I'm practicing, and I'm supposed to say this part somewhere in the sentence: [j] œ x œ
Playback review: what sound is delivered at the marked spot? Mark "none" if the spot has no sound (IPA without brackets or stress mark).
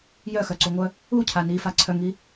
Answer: j